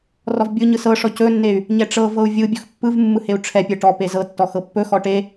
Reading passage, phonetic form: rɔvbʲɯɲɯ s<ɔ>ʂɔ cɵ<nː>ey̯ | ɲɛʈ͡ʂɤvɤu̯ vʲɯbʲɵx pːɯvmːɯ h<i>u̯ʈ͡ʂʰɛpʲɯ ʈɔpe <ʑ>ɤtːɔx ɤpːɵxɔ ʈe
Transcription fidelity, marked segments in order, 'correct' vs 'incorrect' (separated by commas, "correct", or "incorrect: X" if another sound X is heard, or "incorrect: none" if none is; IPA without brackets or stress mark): incorrect: ɤ, correct, incorrect: e, incorrect: z